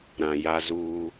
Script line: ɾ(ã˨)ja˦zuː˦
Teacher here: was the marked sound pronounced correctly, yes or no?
yes